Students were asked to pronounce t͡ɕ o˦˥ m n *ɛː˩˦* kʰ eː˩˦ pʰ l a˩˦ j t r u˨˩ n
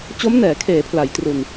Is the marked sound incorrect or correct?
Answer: correct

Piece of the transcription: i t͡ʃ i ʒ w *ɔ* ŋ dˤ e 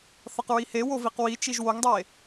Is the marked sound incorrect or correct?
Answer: incorrect: o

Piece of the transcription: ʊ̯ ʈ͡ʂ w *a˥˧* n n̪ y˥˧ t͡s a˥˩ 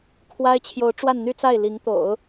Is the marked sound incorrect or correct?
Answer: correct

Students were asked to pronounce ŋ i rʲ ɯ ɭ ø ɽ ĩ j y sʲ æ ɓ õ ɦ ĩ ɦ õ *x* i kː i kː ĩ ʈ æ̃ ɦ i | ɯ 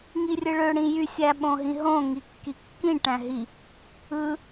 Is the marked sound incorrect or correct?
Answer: incorrect: ŋ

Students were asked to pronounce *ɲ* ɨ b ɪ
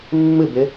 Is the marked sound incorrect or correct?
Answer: incorrect: mː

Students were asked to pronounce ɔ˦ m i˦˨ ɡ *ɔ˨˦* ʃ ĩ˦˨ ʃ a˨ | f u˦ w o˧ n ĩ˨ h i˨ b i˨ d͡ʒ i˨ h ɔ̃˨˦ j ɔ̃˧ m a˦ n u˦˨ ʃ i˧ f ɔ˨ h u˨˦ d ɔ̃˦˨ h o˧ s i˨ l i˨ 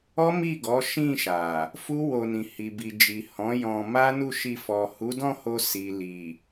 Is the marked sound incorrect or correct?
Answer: correct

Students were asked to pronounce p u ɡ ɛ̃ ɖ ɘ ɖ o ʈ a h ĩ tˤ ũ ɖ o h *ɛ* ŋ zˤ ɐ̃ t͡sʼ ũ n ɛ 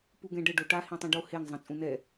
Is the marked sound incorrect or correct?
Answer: incorrect: e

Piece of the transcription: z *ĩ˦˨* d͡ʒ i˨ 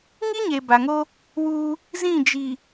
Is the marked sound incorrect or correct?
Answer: correct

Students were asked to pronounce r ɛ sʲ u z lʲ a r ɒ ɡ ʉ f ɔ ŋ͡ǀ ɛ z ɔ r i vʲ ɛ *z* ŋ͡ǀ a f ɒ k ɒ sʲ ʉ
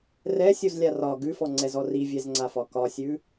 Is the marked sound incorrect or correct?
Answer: correct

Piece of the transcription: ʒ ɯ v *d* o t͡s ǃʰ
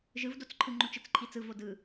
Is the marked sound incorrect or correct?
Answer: correct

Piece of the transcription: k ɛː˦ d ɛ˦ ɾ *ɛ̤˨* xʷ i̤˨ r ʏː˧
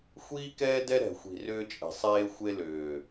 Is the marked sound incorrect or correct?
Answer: correct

